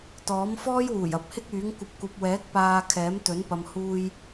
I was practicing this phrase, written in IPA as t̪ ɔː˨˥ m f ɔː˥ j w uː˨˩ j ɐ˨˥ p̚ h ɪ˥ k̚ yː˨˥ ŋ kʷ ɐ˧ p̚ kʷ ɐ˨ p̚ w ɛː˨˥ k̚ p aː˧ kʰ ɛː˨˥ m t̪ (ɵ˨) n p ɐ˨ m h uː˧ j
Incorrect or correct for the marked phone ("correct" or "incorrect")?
incorrect